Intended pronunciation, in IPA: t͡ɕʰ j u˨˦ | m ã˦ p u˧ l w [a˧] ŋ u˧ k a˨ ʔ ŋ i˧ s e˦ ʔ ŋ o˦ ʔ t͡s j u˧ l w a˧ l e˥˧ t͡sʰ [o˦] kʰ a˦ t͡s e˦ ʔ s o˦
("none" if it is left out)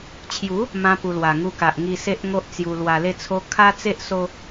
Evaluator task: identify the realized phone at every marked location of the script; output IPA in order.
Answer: a˨˩, o˦

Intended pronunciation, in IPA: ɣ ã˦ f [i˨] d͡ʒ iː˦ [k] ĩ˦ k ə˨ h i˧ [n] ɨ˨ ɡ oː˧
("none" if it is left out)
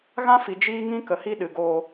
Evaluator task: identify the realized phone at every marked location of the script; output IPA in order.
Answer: i˨, ŋ, ɗ

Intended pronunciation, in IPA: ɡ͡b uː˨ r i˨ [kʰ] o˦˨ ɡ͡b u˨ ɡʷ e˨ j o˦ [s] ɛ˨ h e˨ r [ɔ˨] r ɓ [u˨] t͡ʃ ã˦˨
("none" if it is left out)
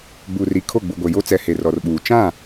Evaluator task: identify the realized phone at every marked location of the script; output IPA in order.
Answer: kʰ, t͡s, ɔ˨, uː˨

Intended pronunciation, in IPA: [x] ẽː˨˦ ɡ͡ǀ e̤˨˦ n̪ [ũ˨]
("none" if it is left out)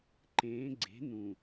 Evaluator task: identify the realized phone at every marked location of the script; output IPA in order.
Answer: ǃ, ũ˨

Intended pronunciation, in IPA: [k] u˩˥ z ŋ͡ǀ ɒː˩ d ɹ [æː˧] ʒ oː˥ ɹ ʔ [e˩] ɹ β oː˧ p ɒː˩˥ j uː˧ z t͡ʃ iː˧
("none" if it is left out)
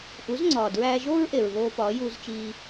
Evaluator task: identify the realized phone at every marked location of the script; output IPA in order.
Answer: ʔ, æː˧, e˩

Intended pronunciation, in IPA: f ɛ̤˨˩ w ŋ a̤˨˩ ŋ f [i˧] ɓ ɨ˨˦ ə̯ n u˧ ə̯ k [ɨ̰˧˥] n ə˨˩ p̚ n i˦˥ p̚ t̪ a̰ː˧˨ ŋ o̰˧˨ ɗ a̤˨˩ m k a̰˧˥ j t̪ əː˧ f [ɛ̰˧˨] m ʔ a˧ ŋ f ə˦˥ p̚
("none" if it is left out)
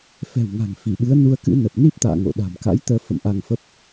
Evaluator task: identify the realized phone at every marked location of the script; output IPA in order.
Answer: i˧˩, ɨ̰˧˥, ə̰˧˨

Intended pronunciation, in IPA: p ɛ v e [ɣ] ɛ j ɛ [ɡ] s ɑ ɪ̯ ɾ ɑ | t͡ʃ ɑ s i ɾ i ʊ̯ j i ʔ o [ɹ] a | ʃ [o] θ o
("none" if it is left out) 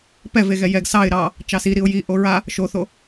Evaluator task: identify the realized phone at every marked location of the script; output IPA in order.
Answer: ɣ, ɡ, ɹ, o

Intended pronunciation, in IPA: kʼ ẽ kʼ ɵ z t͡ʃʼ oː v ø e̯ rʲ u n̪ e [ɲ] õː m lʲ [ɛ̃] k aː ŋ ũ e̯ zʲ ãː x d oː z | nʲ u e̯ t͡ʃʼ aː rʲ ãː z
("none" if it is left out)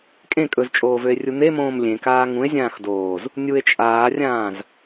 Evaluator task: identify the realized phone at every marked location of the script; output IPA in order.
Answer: m, ẽ

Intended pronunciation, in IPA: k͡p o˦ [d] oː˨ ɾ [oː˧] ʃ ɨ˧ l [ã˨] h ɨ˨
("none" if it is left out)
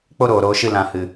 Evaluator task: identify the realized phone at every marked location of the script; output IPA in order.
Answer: ɾ, oː˧, ã˨

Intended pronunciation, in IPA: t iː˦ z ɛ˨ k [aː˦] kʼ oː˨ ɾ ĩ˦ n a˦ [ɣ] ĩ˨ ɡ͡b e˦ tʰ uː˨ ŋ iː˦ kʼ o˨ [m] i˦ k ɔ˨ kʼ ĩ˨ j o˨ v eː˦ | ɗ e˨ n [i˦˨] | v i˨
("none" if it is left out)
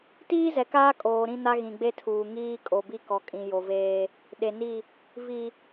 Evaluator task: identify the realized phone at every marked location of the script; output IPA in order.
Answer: aː˦, ɣ, b, i˦˨

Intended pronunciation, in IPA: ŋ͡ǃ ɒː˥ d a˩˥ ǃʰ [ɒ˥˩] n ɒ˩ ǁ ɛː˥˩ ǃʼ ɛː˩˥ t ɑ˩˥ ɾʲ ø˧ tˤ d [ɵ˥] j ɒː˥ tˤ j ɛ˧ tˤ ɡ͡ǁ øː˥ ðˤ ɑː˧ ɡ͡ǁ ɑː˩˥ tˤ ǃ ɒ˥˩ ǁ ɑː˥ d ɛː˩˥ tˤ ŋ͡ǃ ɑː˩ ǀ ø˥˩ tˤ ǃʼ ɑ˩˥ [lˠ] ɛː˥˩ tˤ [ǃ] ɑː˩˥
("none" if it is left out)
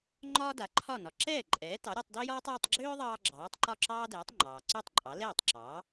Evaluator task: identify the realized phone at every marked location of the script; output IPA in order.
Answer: ɒ˥˩, ø˥, l, ǁ

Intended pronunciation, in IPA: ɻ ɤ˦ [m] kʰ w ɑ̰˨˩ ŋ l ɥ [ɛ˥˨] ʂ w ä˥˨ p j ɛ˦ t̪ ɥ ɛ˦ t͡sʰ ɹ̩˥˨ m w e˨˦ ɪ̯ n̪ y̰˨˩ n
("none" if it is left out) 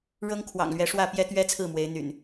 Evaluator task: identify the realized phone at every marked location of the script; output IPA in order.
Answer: ŋ, ɛ˨˦

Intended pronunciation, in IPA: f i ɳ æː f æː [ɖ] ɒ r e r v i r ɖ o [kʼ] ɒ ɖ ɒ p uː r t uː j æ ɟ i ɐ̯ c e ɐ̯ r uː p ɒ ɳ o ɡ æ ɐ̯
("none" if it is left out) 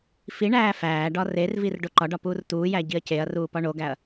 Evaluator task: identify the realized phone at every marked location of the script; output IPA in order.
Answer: ɖ, ǃ

